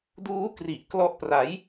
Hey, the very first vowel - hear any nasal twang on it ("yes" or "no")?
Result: no